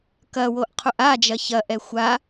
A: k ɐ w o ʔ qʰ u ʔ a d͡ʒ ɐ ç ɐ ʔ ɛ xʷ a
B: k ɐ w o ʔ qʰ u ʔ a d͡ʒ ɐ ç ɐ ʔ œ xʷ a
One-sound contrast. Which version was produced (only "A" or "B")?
A